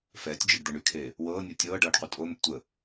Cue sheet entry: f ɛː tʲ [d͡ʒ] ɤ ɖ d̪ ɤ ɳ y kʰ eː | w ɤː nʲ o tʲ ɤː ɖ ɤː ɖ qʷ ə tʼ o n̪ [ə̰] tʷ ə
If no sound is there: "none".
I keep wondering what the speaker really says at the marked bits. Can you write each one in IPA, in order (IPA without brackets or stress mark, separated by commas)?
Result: d͡ʒ, ə̰